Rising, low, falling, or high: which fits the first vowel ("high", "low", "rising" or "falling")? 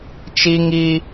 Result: high